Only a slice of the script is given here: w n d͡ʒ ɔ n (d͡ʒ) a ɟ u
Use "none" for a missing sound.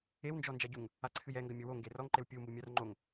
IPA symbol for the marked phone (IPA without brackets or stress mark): d͡ʒ